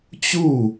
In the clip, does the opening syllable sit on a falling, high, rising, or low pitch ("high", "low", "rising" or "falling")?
falling